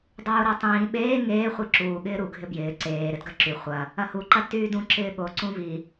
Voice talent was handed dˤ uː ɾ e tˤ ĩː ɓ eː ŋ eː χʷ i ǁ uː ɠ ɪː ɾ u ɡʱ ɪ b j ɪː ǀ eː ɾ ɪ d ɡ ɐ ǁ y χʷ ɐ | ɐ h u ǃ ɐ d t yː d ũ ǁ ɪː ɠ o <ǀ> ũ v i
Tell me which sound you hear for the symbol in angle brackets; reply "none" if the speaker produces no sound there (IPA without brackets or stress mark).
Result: ǀ